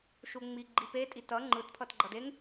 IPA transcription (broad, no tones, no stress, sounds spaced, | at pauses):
ʃ u ŋ͡m i ɡ͡ǃ i p e tʼ i t ʌ ŋ͡ǃ ɯ t pʰ ʌ t ɡ͡ǃ ʌ d e ŋ